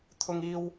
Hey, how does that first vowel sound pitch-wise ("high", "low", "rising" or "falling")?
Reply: high